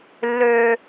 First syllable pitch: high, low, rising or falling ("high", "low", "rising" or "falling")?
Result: low